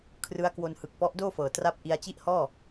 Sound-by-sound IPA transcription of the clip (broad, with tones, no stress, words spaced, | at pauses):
kʰrɯ˦˥a̯kwo˧n hɯ˨˩k̚pɔ˦˥ʔdoː˥˩ fɤː˨˩tra˥˩p̚ ʔi˧a̯t͡ɕi˥˩ʔhɔː˥˩